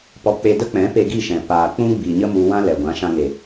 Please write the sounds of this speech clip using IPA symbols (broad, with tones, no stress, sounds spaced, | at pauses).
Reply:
p ɔ˧ k͡p e˧ d ə˦ k͡p ɛ̃˨˦ p e˧ ɡ i˦˨ ʃ ɛ̃˨ p aː˨ k͡p ũ˦ ɡ͡b i˨ ɲ ə˦ m u˧ w ã˦ l ɛ˨ ɡʷ ã˨˦ ʃ ã˧ ŋ e˨